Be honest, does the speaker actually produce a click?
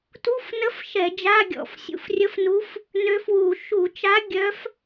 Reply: no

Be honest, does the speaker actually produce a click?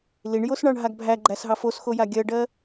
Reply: yes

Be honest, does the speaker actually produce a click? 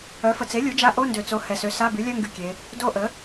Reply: no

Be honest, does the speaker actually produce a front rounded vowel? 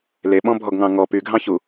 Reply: yes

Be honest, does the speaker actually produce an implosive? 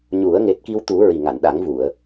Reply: yes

